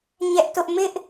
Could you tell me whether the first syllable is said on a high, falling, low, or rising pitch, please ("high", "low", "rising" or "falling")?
high